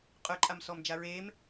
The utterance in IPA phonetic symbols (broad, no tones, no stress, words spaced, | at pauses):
qʼœǃʼamsɔmd͡ʒa ɹem